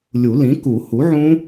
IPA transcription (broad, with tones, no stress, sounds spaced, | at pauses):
lʲ u˨˩˦ l ĩ˩˥ k u˨˩˦ h u˩˥ ʕ ũ˦˥